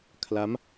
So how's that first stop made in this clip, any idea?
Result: aspirated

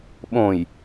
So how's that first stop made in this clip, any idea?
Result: implosive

